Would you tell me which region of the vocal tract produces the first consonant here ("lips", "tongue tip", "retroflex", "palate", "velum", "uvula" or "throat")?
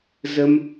tongue tip